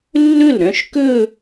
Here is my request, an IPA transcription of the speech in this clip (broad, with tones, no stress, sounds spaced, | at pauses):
lː ɵ˥˩ l ɾ œ̃˥˧ ʃ k ɵ˥˧